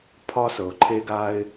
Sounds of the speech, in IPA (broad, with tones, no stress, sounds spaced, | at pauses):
pʰ ɒ˦ s ɤ˩ ʊ̯ ǃʰ e˦ ɡ a˦ ɪ̯